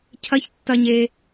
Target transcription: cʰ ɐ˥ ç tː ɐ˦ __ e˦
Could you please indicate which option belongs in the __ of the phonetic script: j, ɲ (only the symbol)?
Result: ɲ